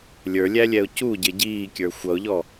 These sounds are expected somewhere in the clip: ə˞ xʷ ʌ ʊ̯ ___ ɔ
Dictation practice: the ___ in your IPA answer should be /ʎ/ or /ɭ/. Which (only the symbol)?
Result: ʎ